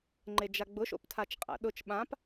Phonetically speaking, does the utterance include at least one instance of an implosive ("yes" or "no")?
yes